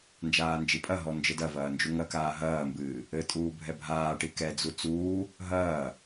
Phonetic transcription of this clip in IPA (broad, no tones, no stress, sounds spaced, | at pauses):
n d͡ʒ aː n d͡ʒ i pʼ ɐ ɦ ɔ n d͡ʒ ɘ d ɐ v ɐː n d͡ʒ u ŋ ɐ k aː ɦ ɐː m b ɨː | ɘ tʼ uː bʱ ɛ bʱ aː ʈ i k ɛ d͡z u t͡s uː | ɦ ɐː